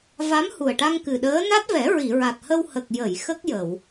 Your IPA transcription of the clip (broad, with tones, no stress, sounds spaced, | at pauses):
v a˧˥ m h u˨˩ ə̯ ʈ a˧ ŋ k ɨ˨˩ ɗ əː˧˥ n a˦˥ t̚ v ɛ˨˩˦ ɹ i˨˩˨ ɹ a˨˩ t̚ h ə˧ w h ə˨˩ k̚ j ə˨˩˨ j x ə˦˥ k̚ j ə˨˩˨ w